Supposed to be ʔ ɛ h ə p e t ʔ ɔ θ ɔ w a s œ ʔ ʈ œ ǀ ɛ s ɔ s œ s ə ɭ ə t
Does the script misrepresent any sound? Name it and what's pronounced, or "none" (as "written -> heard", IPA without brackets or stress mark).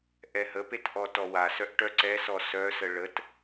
θ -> t